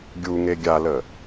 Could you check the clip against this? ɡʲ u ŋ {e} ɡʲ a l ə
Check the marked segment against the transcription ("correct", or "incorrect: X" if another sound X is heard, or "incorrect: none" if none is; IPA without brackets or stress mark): correct